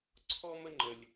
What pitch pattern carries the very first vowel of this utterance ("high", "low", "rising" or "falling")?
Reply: high